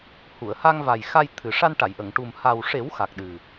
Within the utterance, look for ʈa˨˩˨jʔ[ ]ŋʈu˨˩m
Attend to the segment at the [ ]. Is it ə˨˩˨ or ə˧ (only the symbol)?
ə˨˩˨